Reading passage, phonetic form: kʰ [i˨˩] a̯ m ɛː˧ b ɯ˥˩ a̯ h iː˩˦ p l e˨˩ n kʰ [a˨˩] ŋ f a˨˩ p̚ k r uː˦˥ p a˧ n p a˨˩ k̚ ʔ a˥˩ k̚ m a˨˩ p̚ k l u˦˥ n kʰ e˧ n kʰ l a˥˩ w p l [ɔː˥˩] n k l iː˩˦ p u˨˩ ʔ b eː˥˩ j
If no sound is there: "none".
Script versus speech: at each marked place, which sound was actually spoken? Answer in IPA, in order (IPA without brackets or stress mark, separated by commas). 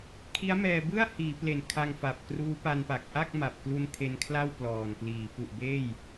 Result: i˦˥, a˧, ɔː˨˩